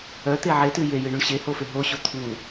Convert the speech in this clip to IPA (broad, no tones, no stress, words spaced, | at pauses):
œt̪e ʕetɨ jejɨɳuɳ ɕehofe ɦoɕo t̪ʰu